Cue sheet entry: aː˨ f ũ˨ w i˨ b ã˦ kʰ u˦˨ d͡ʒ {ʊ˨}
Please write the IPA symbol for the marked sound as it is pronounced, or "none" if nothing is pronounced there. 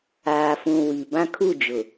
ʊ˨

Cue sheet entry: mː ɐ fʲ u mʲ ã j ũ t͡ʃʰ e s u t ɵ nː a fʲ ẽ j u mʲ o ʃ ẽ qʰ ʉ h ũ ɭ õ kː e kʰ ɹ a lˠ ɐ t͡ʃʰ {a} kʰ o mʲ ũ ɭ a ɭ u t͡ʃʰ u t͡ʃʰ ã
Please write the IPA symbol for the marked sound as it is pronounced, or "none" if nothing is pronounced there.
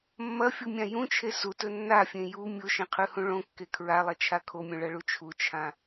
a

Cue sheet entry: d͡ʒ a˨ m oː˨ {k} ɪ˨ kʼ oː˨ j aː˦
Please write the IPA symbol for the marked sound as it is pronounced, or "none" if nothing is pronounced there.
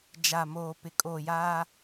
p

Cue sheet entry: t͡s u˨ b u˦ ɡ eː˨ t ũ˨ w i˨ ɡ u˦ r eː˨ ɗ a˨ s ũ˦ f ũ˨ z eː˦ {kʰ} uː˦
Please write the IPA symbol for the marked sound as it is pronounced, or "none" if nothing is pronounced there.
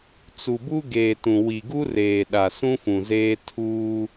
tʰ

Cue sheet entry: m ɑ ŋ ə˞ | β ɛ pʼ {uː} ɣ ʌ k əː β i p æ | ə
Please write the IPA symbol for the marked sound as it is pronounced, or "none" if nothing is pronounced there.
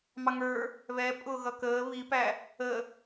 ʊː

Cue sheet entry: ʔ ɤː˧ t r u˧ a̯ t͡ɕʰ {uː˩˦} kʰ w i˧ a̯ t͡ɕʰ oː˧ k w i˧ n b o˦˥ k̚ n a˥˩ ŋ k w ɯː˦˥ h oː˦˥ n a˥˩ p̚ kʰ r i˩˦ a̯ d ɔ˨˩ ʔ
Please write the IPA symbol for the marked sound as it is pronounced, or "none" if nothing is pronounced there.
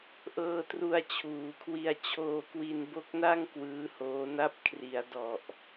uː˩˦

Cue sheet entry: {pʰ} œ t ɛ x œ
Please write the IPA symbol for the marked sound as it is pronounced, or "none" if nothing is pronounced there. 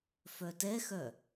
f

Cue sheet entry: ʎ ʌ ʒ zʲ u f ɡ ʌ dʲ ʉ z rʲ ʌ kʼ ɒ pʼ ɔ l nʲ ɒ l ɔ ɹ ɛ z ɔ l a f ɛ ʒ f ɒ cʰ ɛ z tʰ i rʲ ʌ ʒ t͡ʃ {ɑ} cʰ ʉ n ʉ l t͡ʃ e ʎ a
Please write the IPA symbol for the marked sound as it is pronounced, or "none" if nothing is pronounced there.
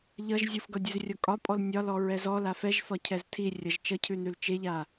ʌ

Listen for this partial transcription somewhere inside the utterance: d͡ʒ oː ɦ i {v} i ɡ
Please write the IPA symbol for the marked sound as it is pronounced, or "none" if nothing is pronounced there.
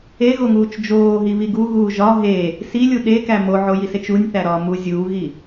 β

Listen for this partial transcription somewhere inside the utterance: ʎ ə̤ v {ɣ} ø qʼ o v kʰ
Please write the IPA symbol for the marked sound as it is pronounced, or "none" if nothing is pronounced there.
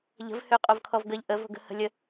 h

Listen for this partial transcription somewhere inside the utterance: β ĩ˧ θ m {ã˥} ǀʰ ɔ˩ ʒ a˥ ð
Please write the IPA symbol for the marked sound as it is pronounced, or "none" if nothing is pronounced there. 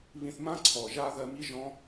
ã˥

